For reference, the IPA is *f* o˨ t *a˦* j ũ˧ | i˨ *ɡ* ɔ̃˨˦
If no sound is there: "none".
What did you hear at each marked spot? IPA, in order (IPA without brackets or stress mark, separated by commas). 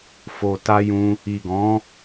f, a˧, ɡ